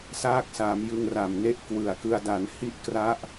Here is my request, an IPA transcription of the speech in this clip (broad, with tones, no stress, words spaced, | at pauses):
saː˦˥k̚saː˩˦m jɯ˧ŋra˨˩mne˥˩ʔ kwɯ˨˩a̯kɯ˧a̯ da˩˦nhi˦˥ʔkra˦˥ʔ